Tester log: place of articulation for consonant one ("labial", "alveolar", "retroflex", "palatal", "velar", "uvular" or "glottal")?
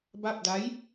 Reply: labial